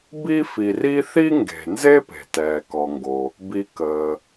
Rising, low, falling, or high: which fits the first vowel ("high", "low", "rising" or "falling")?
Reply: high